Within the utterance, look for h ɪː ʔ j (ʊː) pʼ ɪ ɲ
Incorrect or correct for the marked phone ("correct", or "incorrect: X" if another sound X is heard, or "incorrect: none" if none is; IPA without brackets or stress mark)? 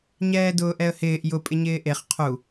incorrect: ʊ